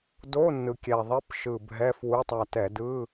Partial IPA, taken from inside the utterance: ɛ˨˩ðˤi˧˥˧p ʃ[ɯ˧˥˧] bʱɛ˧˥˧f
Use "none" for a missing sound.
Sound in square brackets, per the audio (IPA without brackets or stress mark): ɯ˨˩